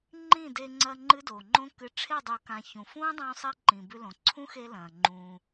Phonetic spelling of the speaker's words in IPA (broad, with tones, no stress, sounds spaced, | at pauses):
ŋ͡ǃ ĩ˦˨ d e˧ ŋ͡ǀ ɐ˧ ŋ͡ǃ ɨ˦ d o˨ ŋ͡ǃ õ˦ k ɨ˨ ʈ͡ʂʰ e˦˨ dˤ u˨ k ã˨ ç ũ˨ f ũː˦ dˤ ũː˧ sˤ i˧ ǃ ĩ˨ b ʉ˧ l õ˨ ǀʰ ũ˦ x e˧ l ɐ̃ː˨ ŋ͡ǃ ũː˧